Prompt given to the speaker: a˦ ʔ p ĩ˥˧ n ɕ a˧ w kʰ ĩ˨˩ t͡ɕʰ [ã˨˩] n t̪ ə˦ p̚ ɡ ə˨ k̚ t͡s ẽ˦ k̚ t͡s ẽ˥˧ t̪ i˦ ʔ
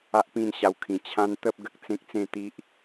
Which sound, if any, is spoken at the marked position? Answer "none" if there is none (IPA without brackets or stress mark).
ã˧